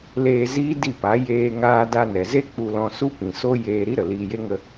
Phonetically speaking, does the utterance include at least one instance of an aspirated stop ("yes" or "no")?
no